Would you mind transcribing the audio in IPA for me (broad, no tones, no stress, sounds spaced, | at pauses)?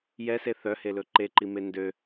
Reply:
j ɛ s e θ œ h e l ɵ ǃ e ǃ i m e n d ø